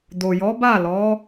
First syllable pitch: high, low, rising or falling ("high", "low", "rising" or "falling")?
low